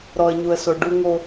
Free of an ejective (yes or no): yes